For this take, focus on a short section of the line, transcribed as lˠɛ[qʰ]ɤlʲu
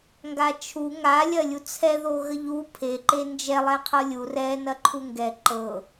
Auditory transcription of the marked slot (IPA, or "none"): qʰ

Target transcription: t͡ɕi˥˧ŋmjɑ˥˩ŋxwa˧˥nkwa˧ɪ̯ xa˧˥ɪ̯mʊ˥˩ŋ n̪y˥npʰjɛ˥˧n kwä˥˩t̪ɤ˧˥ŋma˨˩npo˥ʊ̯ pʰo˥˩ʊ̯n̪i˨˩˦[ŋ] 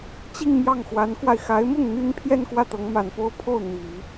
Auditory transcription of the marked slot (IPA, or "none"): none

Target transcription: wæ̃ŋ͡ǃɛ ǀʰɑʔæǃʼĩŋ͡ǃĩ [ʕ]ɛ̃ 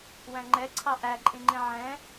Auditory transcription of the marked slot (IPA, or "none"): ʕ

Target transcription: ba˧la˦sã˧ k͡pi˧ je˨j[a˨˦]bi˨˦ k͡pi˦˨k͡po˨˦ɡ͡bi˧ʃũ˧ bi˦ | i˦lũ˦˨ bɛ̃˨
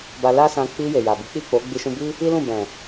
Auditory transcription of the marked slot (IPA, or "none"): a˨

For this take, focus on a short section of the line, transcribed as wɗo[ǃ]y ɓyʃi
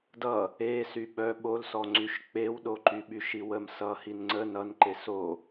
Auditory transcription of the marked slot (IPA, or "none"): ǃ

